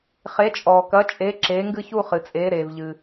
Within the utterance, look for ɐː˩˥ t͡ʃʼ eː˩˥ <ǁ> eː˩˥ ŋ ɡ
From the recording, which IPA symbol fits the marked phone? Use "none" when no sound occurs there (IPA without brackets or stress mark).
ǁ